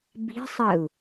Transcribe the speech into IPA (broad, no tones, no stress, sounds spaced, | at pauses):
b i̤ sˤ ə u̯